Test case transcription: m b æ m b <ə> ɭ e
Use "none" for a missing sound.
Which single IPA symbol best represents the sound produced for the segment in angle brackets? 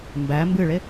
ɨ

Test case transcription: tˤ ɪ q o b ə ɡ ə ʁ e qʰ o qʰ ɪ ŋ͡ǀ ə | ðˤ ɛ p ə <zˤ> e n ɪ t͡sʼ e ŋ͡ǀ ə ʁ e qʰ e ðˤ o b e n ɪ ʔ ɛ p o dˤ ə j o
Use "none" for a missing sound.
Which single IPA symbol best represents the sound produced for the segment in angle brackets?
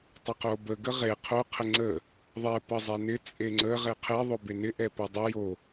zˤ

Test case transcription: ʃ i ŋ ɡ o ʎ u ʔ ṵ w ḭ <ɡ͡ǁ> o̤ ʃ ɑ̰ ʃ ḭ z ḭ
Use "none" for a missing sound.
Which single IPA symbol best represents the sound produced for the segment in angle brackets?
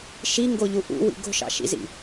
ɡ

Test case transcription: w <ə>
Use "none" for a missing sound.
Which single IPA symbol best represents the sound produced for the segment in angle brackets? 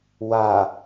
a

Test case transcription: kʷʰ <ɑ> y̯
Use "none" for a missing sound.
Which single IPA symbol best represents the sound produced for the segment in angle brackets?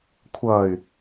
ʌ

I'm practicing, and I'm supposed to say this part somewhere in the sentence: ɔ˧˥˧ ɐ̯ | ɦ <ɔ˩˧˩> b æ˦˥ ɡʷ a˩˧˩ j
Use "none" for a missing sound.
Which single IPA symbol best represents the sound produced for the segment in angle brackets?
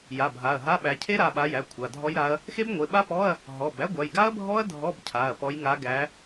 ɔ˩˧˩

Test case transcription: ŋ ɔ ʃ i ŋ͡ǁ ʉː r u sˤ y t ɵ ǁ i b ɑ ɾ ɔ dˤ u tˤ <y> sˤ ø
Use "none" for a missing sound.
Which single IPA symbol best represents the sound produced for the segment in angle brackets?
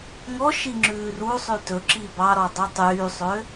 yː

